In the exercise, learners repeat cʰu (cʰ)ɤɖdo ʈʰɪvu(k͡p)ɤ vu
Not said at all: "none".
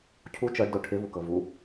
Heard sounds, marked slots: t͡ʃ, k

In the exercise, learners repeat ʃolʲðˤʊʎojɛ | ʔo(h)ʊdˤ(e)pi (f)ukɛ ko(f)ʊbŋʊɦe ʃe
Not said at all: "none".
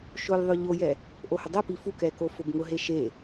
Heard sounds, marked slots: h, e, f, f

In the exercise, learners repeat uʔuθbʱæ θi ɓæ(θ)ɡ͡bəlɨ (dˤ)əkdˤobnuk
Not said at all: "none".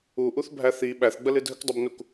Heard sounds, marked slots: θ, dʱ

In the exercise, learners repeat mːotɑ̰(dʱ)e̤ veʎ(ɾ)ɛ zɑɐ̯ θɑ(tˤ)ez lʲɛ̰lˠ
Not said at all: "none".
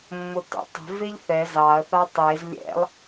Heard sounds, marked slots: tˤ, θ, tˤ

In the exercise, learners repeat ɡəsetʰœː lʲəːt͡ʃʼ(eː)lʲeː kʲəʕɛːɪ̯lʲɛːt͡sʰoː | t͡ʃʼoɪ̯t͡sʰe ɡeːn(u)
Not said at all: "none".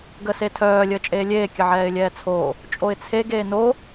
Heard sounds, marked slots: eː, o

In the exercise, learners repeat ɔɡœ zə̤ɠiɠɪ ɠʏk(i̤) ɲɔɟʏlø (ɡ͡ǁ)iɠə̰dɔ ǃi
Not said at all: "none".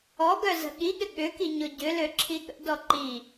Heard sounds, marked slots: i, ǁʰ

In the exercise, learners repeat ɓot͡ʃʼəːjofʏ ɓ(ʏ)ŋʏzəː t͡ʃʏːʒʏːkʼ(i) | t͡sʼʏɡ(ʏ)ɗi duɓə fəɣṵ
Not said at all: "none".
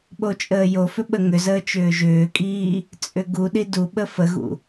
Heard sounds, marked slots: ə, iː, u

